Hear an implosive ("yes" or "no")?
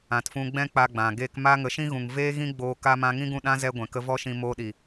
yes